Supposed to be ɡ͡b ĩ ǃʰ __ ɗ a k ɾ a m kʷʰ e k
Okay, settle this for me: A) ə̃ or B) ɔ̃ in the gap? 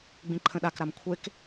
A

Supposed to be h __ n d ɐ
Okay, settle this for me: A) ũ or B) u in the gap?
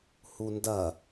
B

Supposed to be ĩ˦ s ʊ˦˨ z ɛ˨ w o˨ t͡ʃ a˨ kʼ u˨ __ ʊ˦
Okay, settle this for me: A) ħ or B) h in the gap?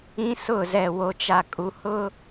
B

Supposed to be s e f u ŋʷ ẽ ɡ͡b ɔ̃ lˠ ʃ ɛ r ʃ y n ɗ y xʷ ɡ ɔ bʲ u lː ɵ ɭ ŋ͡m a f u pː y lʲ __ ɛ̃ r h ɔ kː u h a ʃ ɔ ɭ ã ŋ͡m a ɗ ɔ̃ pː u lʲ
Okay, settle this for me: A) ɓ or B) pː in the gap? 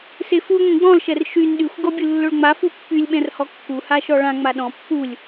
A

